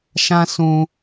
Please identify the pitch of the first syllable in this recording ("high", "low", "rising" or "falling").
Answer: high